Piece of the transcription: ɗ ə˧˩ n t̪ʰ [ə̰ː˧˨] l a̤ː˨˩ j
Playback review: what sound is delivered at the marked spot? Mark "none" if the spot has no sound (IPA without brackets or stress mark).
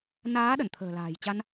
ə̤ː˨˩